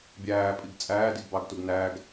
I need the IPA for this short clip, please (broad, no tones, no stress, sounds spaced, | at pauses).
bʲ æː pʼ i ɡ t͡sʼ æː d i ɡ b ɑ ɡ t u ɡ n æ ɡ